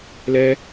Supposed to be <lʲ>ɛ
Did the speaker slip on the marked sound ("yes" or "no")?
yes